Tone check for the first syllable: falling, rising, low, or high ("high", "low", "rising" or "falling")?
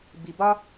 low